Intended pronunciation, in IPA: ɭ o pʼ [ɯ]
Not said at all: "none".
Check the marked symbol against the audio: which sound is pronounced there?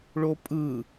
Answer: ɯ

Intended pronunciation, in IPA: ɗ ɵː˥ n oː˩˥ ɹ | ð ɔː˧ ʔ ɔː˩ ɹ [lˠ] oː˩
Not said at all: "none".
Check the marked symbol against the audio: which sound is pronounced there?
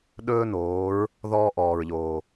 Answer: ʎ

